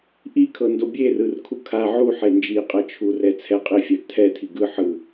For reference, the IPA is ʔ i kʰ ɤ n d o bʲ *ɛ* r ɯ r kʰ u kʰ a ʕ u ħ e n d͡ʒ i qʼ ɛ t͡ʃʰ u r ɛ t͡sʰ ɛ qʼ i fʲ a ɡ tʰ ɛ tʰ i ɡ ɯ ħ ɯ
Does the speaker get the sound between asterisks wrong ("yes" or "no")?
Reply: yes